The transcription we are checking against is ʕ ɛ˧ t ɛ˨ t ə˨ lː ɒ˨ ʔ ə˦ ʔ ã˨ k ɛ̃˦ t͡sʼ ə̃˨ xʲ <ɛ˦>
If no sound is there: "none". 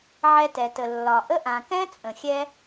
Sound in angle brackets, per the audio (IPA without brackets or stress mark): ɛ˦